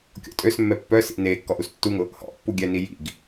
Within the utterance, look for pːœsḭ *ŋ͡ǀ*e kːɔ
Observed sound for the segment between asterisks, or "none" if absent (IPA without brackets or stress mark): n